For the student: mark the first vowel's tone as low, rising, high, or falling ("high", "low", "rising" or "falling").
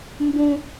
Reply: high